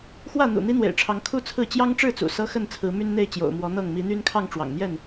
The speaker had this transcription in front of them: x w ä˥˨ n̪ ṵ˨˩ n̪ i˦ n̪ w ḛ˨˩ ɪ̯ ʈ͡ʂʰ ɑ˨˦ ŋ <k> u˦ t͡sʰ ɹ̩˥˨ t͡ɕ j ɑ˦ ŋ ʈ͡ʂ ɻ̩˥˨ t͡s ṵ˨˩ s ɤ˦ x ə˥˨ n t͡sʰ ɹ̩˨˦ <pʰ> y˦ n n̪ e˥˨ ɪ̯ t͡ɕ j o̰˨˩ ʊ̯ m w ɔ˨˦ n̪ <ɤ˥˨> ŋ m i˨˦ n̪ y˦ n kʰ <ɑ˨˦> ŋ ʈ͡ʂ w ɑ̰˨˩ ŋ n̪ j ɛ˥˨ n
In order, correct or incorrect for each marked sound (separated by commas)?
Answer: incorrect, incorrect, correct, incorrect